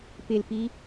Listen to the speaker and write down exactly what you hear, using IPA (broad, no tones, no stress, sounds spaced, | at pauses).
p ɪ l p i